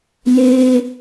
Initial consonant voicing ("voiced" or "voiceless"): voiced